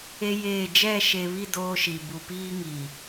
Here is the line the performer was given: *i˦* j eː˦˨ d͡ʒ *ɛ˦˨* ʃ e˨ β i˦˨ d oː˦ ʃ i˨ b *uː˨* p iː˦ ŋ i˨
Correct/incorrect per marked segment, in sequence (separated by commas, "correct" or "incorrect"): incorrect, correct, incorrect